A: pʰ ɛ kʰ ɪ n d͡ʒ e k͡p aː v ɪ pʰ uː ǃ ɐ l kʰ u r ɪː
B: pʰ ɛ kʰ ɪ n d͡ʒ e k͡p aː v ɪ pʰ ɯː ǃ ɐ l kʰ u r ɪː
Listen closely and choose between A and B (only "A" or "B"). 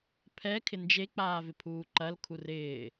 A